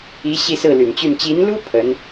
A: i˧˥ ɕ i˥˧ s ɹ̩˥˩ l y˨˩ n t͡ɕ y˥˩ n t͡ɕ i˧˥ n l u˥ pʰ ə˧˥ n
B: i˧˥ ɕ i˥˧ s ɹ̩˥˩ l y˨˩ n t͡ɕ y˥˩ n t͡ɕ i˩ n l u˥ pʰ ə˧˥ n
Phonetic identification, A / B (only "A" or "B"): A